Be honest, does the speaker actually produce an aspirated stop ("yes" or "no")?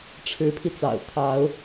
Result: yes